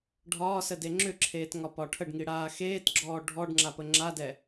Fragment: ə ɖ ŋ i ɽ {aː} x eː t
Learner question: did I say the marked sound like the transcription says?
yes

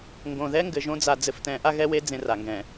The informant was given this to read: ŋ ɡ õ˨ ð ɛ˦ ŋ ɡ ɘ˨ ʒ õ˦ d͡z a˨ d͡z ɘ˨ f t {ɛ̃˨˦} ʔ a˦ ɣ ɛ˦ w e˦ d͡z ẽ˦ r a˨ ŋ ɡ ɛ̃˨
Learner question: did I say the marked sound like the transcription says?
yes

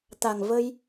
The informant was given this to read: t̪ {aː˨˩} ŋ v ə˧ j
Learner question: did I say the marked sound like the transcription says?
no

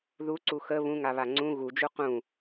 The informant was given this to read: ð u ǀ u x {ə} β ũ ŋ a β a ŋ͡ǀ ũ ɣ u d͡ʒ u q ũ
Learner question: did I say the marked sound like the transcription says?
yes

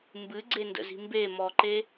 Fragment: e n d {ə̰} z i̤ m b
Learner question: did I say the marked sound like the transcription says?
yes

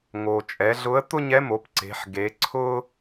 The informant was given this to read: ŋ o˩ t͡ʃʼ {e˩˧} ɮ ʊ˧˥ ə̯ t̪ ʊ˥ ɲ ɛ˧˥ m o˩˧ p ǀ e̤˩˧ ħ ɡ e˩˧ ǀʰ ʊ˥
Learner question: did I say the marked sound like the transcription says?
no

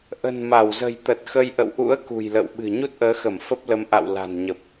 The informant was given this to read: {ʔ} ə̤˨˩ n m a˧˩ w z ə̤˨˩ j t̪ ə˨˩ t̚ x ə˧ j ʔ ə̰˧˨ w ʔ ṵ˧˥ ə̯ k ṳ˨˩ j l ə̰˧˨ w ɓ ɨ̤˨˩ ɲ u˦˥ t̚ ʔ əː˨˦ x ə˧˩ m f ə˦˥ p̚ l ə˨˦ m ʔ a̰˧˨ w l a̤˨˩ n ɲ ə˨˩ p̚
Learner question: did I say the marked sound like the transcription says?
yes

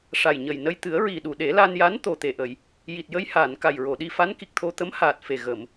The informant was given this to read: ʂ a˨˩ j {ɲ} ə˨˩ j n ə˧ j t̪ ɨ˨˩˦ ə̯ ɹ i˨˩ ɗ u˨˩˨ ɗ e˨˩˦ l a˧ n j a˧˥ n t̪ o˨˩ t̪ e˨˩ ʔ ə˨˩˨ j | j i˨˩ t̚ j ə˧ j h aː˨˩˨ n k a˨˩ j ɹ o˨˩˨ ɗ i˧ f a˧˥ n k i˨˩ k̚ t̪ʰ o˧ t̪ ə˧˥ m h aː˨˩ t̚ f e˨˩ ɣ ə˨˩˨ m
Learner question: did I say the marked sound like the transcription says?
yes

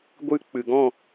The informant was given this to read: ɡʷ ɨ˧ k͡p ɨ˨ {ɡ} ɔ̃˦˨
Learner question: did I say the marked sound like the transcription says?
yes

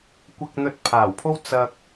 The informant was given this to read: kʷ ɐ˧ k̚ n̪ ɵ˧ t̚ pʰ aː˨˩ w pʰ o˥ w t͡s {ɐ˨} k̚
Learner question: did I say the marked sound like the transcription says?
no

